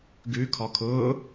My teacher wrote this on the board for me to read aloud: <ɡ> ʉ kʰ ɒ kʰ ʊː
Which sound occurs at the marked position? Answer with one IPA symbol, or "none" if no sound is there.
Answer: ɡ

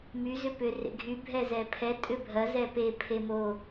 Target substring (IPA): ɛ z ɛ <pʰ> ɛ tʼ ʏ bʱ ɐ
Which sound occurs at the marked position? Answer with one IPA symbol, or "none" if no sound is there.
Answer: pʰ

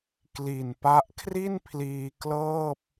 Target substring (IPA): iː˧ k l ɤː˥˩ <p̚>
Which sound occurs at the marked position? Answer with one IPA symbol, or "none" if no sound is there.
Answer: p̚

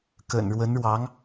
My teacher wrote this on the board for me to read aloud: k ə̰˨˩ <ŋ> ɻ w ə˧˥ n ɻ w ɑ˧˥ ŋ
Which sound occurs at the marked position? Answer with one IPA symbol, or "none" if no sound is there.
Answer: n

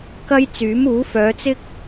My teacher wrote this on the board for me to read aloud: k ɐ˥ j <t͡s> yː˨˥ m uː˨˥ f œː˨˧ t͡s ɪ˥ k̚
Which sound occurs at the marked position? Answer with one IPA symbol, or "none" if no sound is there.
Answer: t͡s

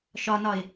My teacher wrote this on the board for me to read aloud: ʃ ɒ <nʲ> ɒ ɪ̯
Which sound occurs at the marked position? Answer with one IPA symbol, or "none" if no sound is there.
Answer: n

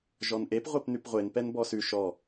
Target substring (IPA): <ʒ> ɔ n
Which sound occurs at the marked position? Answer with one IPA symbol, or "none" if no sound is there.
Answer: ʒ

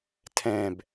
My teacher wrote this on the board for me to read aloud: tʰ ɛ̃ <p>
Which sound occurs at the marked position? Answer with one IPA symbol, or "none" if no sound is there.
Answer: b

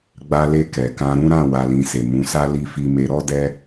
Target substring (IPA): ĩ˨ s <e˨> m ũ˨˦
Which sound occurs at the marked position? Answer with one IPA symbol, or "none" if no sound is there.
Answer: e˨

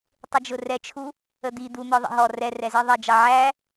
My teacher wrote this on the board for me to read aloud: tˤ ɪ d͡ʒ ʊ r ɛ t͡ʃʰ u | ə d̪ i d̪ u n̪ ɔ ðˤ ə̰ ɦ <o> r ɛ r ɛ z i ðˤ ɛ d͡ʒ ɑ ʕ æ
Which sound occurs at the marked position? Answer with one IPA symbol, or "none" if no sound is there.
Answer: ɔ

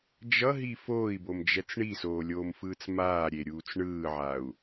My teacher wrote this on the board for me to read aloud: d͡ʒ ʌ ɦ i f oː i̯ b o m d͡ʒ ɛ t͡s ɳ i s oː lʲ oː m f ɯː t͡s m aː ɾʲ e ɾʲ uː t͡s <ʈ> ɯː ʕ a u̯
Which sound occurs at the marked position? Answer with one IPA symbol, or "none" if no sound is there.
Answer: ɳ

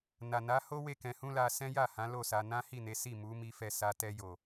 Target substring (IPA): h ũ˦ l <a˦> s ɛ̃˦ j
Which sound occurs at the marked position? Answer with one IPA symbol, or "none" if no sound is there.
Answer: a˧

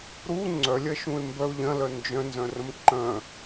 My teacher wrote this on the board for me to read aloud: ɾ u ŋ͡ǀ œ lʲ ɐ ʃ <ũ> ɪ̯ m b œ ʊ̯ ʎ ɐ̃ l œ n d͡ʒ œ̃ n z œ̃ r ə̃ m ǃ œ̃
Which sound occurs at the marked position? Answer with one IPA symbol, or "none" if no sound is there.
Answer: ũ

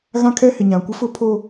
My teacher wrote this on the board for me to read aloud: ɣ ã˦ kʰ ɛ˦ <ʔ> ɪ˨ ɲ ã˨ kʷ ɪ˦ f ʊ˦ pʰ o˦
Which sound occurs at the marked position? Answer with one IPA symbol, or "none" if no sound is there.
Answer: h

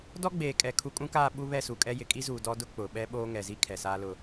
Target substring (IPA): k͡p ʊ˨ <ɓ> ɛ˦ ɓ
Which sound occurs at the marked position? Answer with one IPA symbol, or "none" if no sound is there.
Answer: ɓ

